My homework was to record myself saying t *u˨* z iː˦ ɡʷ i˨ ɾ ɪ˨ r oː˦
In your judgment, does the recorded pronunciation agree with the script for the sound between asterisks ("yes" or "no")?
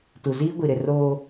yes